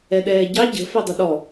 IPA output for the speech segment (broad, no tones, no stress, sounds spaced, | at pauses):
ɛ ɗ ɛː ɟ ɑ ɟ ə̤ f ɛ dˤ ə ɗ ɔ